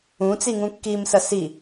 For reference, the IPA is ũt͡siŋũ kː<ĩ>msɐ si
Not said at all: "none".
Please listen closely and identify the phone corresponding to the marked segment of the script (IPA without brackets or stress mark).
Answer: i